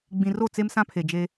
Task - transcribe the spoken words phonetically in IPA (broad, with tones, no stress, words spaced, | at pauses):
ɡ͡bĩ˨ro˦˨ t͡se˦msã˦pʰe˨ d͡ʒe˦